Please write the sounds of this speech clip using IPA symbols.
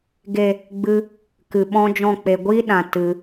ɡ e˨ | ɡ͡b ɨ˧ | k ɨ˨ ɓ ɔ̃˦ d͡ʒ ɔ̃˦˨ k͡p e˧ ɡʷ i˦ ɗ ã˨ t ɨ˧

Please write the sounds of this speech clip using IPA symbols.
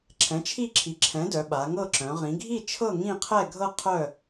ǁʰ ɛ̃˩˥ t͡ʃʰ i˥˨ ǁʰ i˩˥ ǁʰ ɛ̃˩˥ d œ˩˧ ɓ a˩˧ ŋ ɤ˥˨ ǁ œ̃˩˧ ʁ ĩ˩˧ ɡʱ i˥˨ t͡ʃʰ ɤ˥˨ ŋ ĩ˥˨ qʰ ɛ˥˨ ɡʱ ɤ˥˨ qʰ œ˥˨

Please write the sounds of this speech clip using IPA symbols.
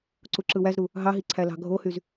ǀ u ǁ ɯ w æ z ɾ u | ɦ ɑ ɦ i ǀʰ æ l ɑ̤ ɡʱ o h y z

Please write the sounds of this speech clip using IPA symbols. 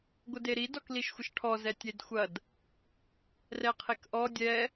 ɡʷ ə d e ɾ i d ɔ k l i ʃ xʷ ə ʃ ʈʰ ɔ z ɛ tʲ e d xʷ ɐ d | r ɛ qʰ e k ʔ ɔ dʲ ɛ

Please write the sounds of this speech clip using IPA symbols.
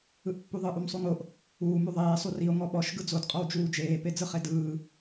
ɯ ʔ pː u ðˤ ɯ ʔ u m sˤ u ŋ o ʔ | uː m u ðˤ eː sˤ u r i o̯ ŋ ɔ ɓ ɔ ʃ ɡ ɯ d͡z o d qʼ ɔ w d͡ʒ uː d͡ʒ eː p e d͡z ɯ χ e d ɯː

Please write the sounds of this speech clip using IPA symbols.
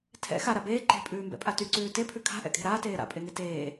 tʰ ɛ̰ x a ɾ a b eː ǃ e̤ pʼ ʉː m b ɛ̰ pʼ a t y ǀ ʉː t e pʰ ʉ kʰ a̤ ʔ ɛ̰ kʼ e̤ ɾ aː t eː ɾ a̰ pʼ e ŋ e t eː

